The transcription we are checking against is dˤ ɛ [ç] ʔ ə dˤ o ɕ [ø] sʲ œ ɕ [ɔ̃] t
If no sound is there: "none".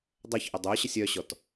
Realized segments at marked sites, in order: ç, ə, ɔ

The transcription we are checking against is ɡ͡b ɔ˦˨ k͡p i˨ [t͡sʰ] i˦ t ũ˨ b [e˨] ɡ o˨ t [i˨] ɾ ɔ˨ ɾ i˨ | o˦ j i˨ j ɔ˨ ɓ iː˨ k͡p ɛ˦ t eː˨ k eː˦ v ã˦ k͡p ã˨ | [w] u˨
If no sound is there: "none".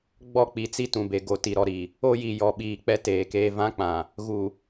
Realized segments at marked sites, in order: t͡s, e˨, i˨, ɣ

